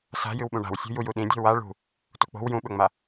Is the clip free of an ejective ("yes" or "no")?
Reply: yes